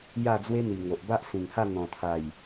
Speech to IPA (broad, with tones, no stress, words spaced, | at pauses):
ja˥˧d͡zwe˦n̪i˨˩ ŋo˨ʔba˦ʔ sĩ˨˩ŋha˥˧ n̪ɔ̃˨˩t̪ʰa˨˩j